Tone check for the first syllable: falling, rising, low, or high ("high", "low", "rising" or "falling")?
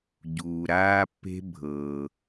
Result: low